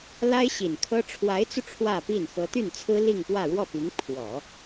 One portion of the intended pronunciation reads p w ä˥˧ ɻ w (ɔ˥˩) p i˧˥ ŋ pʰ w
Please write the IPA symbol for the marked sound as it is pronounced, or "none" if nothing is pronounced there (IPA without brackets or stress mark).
ɔ˥˩